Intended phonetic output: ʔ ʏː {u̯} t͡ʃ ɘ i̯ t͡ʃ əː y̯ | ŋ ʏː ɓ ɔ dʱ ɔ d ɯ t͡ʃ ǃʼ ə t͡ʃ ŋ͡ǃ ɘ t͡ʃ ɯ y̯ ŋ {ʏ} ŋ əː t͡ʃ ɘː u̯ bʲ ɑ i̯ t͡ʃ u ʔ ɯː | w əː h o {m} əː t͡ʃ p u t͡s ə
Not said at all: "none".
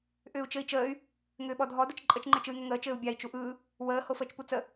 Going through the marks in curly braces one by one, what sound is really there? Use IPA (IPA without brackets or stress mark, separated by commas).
u̯, ʏ, f